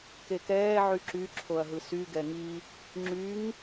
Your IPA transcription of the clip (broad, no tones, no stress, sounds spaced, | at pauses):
k e k ɛː ʕ y ǁ y ǁʰ o ɐ̯ ɦ ɯ s y ɡ ɛ ŋ i | ŋ͡ǁ y ŋ